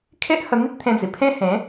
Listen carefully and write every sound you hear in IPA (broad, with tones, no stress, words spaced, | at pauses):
kʰe˦ʔhə˧n̪i˦t̚ t̪ʰẽ˧d͡zi˨˩pʰẽ˦ hẽ˨˦